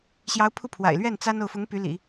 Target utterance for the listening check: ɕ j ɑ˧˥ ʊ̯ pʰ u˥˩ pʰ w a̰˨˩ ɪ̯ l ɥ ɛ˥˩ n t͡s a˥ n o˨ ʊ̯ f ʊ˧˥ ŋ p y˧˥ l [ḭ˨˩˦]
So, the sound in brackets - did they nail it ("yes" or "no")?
yes